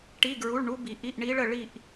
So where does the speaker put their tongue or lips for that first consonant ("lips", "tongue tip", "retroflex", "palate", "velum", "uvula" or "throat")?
retroflex